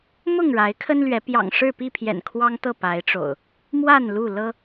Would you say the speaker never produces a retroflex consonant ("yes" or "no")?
no